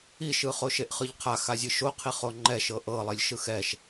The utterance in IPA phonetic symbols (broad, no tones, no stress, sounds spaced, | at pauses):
i ʃ ɯ χ o ʃ e ʔ χ ɯ ʎ qʰ a x a zʲ ɯ ʃ o qʰ i χ o ŋ͡ǃ ɛ ʃ ɤ ʔ ɤ lˠ i lʲ ʃ ɯ x ɛ ʃ